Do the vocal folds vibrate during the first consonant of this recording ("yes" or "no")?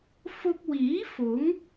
no